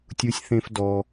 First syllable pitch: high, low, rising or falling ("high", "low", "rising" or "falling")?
high